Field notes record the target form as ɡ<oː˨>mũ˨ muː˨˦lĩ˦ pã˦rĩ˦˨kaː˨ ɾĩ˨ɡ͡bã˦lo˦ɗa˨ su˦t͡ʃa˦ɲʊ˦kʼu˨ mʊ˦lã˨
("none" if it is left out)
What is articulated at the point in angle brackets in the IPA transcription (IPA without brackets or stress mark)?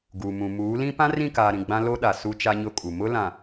uː˨